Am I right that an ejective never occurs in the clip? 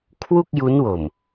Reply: yes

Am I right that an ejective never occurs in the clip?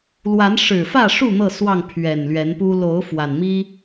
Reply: yes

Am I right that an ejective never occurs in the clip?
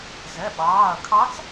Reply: yes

